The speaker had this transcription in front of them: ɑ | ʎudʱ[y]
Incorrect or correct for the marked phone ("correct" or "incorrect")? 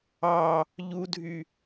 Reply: correct